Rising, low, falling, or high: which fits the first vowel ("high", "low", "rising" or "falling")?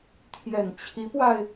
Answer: low